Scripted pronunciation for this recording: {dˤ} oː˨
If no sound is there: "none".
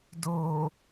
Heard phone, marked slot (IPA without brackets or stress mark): d